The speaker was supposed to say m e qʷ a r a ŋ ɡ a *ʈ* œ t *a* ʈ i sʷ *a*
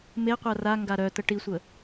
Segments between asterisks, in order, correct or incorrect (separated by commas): incorrect, incorrect, incorrect